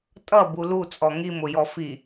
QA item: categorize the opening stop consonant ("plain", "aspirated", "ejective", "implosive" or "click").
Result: ejective